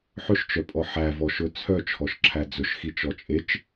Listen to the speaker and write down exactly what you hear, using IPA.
ħ ɵ ʃ t͡ʃ œ pʼ ɔ ħ æ v ɔ ʃ ɵ t͡sʰ œ t͡ʃʰ ɔ ʃ ǁʰ æ d͡z ɵ ʃ x i t͡ʃ ɔ t͡ʃʼ e t͡ʃ

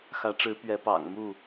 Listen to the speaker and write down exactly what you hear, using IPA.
x ä˨˦ ʈ͡ʂ ɻ̩˨˦ p ɥ ɛ˨˦ p ɑ̰˨˩ ŋ m u˥˨

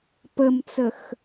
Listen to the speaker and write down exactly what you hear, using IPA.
p ə m t͡s ə x

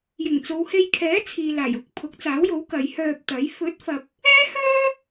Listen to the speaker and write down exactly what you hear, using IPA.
j ɪ˨˩ ŋ t͡s o˨ w h e˧ j kʰ ɛː˨˥ t͡sʰ iː˨ l aː˨˩ j ʊ˨ k̚ pʰ ʊ˨˥ k̚ t͡s aː˨˥ w j o˨˥ w k ɐ˨˧ j h œː˧ p̚ t̪ ɐ˨˥ j f ɵ˨˥ t̚ f ɐ˨ p̚ | ɛː˥ h œː˥

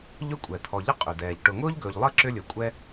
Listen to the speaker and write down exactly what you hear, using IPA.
ʎ ɵ˥ kʷʼ ɛ˩ t̪ʰ ɔ˨ ʎ ə˥ qʼ ʏ˩ d ɛː˩ ʎ ʈ ʊ˨ ŋ ʊː˥ ʎ ɡ ɵː˨ ʎ lˠ ɘ˥ ǁ ʏ˦ lʲ ɵ˩ kʷʼ ɛ˦

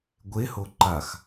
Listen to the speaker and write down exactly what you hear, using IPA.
ɡʷ e h o ǃ a x

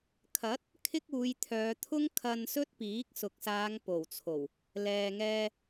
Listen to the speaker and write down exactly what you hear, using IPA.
kʰ ɐ˨˥ t̚ | kʰ ɪ˥ k̚ uː˨˧ j t̪ʰ œː˨˧ t̪ʰ ʊ˥ ŋ kʰ ɐ˧ n s ɵ˥ t̚ p iː˨˥ k̚ s ʊ˨ k̚ s aː˨˧ ŋ p o˨˩ w t͡sʰ o˨˩ w | l ɛː˨ ŋ ɛː˧

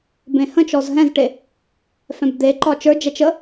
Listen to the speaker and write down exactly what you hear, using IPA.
b ẽ h ə̃ t͡ʃ ɔ z ɦ ɛ̃ z ʈ e | f ɛ̃ b d̪ e ǃ ɒ t͡ʃ ə˞ d͡ʒ ɛ t͡ʃ ə

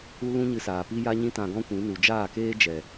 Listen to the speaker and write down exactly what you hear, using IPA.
u˦ l ũ˦ ɲ ɨ˧ s aː˨ p i˦ j a˦ ɲ ĩ˦ t ã˧ ɡ ɔ̃˦ kʷ ĩ˨˦ n u˨ d͡ʒ aː˦˨ k eː˦ d͡ʒ ɛ˨

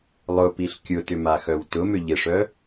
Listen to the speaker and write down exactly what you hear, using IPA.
lˠ ʊ p i ɬ kʲ ʊ t ʏ m a x œ w t ʊ m ʏ ʎ ɪ ʂ œ

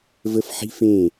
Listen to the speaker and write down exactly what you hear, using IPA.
v ə f ħ i̤ f ẽ

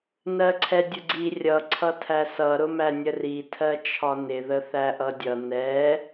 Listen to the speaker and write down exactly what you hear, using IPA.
n ɜ ǀʰ ɛ dʲ ʊ ɡ͡ǀ i rʲ ʌ ǀʰ ʌ tʰ æ s ʌ ɾ ʊ m æ nʲ ə r i tʰ ɜ t͡ʃʰ ɒ n ɪ ð ə θ æ ʔ ʌ dʲ ʌ n ɛ

